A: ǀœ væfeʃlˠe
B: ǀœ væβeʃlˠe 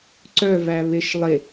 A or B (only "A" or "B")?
B